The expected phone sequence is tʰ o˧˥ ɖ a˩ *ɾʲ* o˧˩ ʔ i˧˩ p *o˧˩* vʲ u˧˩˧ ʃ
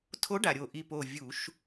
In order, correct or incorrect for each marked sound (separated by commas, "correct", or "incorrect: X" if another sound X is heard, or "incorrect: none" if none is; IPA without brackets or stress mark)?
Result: correct, correct